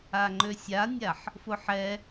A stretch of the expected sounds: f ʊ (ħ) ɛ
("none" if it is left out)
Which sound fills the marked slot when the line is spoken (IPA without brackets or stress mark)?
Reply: ħ